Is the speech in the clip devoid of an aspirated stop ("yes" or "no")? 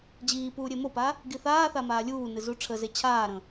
no